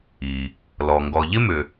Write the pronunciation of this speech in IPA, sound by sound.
i˩ | lɔ˩ ŋɡɔ˩ ʎɪ˥mʏ˩

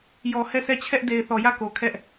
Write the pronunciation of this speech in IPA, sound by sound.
jɔ˨ hɛ˦˨sɛ˦˨t͡ɕʰɛ˦ʔ de˨ɪ̯θɔ˨ jä˦˨ko˨ kʰɛ˦ʔ

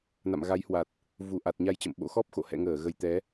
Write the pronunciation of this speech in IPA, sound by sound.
na̰˧˨mɣa˨˦jhwa˨˩t̚ | vu˧˩ʔa˨˩t̚ ɲa˧jt͡ɕə̰˧˨m ɓo̰˧˥ xɔ˦˥p̚xo̰˧˨ hɛ̰˧˨ŋəː˧˩ ɣə˨˩j t̪ɛ˨˦

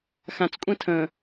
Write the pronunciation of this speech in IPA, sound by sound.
xãt͡skʷʼɛ̃ tʰə̃

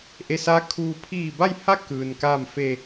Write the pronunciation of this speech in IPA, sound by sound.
ʔe˧sa˧˥kʰuː˧ pʰiː˧˩ba˥˨jha˥˨ kɯː˩nka˥˨m fe˧˩

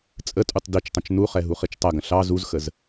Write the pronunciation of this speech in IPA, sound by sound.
t͡sʼətʼutˤ dit͡ʃtˤə̃t͡ʃ nuχɛ ɦuχit͡ʃtˤɐɡə̃ ɬɑ zuzxəz

